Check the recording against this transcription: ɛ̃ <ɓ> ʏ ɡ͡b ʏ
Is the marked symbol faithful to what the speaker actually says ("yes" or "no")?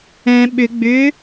yes